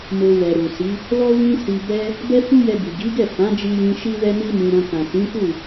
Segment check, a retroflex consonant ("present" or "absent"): absent